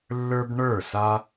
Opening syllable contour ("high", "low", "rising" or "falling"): high